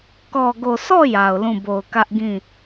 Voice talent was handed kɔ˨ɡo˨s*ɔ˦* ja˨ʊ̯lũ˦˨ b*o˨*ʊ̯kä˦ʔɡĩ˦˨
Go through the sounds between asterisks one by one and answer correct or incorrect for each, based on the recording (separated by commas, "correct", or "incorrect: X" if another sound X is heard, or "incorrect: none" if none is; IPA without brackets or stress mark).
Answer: incorrect: ɔ˦˨, correct